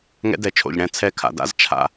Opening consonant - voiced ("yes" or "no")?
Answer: yes